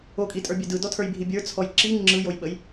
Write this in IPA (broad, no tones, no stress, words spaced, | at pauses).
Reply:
okʼitʼə˞bʲɛ dɯdɔtʰə˞jbʱi bʲə˞t͡sʰɔj ǁi ŋ͡ǁɯjojɓəj